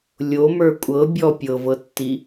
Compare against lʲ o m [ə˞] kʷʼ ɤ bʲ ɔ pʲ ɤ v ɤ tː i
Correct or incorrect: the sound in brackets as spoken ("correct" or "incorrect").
correct